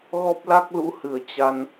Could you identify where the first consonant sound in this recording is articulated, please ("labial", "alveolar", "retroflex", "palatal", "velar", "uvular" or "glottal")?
velar